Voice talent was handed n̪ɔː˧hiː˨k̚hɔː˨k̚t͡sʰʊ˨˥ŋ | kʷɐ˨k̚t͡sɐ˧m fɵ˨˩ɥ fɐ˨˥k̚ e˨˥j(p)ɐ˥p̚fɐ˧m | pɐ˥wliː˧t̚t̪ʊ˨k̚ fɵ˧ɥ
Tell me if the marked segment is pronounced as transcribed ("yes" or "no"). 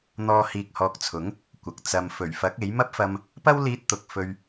no